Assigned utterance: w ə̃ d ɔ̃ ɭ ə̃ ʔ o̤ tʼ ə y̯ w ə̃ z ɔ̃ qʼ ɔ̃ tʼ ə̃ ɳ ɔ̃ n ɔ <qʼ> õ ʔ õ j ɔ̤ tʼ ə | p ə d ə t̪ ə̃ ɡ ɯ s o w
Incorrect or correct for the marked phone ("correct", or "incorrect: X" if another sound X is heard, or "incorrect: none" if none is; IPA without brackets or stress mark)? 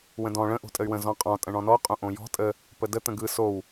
correct